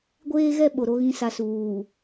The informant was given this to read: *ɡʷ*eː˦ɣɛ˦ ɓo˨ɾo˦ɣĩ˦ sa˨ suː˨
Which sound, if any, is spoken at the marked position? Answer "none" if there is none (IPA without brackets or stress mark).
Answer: ɡʷ